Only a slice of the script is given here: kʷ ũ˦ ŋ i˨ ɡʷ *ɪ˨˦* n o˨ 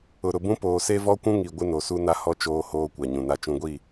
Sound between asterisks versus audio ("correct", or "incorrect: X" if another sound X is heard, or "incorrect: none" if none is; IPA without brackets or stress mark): incorrect: ɪ˦